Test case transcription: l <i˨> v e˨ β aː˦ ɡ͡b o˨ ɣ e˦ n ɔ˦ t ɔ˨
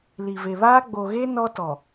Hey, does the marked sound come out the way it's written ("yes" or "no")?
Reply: yes